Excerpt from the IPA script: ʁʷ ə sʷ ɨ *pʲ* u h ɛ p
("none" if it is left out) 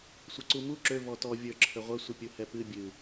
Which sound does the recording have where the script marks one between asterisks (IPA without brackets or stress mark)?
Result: pʲ